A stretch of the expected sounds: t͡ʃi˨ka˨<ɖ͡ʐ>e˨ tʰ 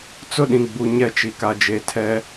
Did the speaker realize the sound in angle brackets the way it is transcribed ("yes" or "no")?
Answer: no